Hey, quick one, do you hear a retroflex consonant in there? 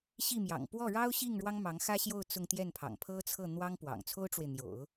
yes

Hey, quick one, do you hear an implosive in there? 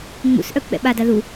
yes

